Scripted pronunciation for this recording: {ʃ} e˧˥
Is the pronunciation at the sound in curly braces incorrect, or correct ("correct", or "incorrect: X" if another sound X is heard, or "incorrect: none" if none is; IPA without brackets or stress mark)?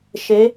correct